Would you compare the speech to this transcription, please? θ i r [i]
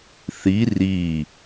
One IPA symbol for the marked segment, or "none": i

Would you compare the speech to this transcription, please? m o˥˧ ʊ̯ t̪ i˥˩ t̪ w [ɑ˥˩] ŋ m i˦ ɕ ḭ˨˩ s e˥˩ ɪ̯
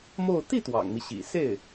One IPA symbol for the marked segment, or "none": ɑ̰˨˩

